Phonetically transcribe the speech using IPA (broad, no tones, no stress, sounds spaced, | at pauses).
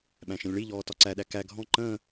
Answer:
ɓ æ̃ ʃ ə̃ lʲ ɭ i ʎ ɔː t ɒ ǀ æ ɗ æ k æ ɡʱ ɔ̃ ǃ ə̃ː